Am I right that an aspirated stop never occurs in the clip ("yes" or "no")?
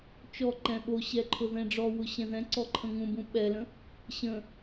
no